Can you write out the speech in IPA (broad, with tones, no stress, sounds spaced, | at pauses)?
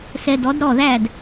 s ɛ˧ d ɔ˩˥ d ɾ ɔ˥˩ ð æ˥˩ d